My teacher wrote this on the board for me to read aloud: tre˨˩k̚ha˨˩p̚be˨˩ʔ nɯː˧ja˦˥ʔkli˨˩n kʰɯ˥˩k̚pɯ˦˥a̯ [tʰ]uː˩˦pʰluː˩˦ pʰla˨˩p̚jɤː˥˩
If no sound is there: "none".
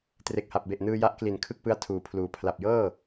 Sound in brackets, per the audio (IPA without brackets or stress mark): tʰ